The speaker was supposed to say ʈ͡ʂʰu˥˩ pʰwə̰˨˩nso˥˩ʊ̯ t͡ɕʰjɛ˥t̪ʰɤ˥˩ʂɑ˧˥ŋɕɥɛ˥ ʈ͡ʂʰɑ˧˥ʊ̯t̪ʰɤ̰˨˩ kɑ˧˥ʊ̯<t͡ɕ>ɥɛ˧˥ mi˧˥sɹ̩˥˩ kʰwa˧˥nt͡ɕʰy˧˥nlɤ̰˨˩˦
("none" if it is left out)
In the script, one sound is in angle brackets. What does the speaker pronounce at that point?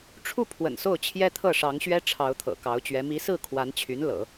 t͡ɕ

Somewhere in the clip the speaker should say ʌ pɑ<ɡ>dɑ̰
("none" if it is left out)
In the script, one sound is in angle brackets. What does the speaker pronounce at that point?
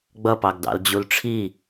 ɡ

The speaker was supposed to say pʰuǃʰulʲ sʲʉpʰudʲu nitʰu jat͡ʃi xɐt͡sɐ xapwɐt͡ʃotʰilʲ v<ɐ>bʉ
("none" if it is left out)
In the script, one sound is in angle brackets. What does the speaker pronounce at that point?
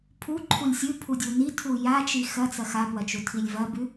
ɐ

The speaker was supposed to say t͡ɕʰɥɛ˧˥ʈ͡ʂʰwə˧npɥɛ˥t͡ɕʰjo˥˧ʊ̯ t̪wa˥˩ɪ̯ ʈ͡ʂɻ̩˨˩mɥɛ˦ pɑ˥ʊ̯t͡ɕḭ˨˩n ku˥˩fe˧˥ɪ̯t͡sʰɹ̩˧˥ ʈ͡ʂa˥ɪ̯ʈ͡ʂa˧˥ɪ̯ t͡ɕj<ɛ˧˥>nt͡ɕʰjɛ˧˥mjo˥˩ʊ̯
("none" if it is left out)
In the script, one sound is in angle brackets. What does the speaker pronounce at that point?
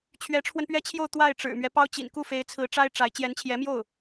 ɛ˧˥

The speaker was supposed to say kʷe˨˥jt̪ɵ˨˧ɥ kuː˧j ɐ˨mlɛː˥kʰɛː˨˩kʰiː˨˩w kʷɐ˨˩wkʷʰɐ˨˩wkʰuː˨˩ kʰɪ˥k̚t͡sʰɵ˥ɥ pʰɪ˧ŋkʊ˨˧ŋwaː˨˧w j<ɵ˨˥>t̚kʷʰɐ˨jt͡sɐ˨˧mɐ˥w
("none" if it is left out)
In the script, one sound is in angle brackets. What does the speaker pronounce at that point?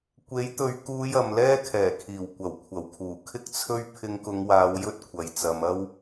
ɵ˥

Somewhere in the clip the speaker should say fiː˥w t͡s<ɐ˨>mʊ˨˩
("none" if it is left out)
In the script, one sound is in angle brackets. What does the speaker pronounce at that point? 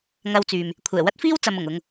ɐ˨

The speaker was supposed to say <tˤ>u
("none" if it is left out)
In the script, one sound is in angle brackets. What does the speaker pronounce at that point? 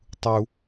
tˤ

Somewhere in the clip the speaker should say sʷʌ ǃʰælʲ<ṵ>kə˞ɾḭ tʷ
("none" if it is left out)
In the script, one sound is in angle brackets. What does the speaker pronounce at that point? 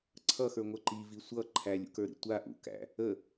ṵ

